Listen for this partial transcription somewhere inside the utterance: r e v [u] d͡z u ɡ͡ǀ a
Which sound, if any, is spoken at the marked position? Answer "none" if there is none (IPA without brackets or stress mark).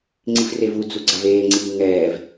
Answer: u